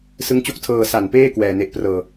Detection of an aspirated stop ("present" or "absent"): present